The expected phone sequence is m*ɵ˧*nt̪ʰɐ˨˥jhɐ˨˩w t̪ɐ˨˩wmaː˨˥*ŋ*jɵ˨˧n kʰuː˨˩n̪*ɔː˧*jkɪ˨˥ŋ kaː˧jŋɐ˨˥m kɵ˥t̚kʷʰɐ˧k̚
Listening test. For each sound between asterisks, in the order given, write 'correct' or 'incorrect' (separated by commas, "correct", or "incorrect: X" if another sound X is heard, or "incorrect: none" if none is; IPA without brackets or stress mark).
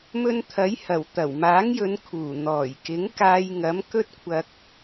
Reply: correct, correct, incorrect: ɔː˨˩